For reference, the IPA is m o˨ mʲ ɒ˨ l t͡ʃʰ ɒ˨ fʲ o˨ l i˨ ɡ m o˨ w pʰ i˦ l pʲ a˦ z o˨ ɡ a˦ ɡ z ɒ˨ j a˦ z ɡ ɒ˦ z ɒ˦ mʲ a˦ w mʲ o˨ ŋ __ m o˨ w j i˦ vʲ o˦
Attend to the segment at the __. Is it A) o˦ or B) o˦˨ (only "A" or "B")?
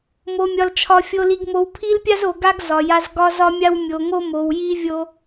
A